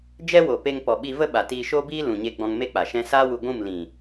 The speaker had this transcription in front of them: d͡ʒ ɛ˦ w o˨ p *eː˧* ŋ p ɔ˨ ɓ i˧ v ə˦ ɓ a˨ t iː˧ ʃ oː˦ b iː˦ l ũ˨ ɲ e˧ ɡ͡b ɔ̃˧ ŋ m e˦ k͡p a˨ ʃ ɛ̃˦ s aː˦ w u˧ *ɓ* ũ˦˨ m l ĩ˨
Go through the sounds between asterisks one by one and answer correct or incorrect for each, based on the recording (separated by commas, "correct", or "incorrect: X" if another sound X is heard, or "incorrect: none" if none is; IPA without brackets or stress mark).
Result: incorrect: e˧, incorrect: ɡʷ